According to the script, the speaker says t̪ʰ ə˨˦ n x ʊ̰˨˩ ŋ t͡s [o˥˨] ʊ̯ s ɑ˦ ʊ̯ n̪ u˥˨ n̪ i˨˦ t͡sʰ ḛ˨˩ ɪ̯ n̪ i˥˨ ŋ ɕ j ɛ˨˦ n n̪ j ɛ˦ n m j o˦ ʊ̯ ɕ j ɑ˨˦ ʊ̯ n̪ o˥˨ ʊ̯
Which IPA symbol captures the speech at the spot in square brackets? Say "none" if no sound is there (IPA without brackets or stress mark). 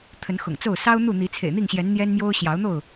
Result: o˥˨